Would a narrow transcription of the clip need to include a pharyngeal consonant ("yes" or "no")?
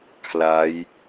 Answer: no